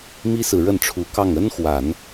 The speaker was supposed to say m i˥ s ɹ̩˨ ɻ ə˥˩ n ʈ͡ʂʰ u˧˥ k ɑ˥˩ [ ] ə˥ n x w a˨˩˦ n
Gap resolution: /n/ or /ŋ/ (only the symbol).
ŋ